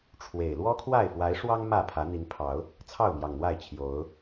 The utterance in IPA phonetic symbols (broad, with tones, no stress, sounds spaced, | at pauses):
ʈ͡ʂʰ w e˨˩ ɪ̯ l w ɔ˦ kʰ w a˥˨ ɪ̯ f w a˨˦ ɪ̯ ʂ w ɑ˦ ŋ m ä˥˨ pʰ ä˨˦ n̪ i˨˦ n pʰ ɑ˨˦ ʊ̯ | t͡sʰ ɑ˥˨ ʊ̯ m j ɑ˨˩ ŋ n̪ w a˥˨ ɪ̯ t͡ɕʰ j o˨˦ ʊ̯